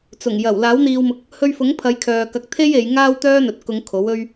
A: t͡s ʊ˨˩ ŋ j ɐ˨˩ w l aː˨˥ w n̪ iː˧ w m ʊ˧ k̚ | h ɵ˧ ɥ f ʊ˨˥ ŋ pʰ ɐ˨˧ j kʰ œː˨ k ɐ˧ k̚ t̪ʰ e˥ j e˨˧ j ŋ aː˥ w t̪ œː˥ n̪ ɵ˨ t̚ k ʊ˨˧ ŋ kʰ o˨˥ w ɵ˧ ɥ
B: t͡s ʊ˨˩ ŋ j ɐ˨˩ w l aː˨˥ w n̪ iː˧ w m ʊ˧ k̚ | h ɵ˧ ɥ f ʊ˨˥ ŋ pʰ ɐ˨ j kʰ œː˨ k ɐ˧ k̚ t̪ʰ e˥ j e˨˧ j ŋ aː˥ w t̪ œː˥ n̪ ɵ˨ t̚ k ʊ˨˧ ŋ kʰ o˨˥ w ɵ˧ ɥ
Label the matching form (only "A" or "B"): A